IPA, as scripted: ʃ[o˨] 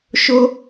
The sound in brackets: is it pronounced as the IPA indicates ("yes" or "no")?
no